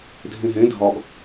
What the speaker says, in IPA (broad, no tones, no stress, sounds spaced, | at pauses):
dʱ ẽ ɦ ẽ dʱ ɒ ɡ